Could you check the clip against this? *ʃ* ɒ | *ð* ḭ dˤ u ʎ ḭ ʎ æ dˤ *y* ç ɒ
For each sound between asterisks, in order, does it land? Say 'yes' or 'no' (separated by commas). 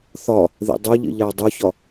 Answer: no, yes, no